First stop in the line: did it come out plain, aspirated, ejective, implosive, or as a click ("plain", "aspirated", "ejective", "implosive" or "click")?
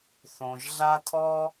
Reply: aspirated